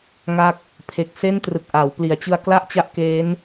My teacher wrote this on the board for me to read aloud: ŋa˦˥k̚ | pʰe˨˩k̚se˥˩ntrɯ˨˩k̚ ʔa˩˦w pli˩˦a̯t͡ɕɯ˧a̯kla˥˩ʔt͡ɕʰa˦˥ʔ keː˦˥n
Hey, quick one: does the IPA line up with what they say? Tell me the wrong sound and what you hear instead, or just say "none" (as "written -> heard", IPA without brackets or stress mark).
t͡ɕʰ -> t͡ɕ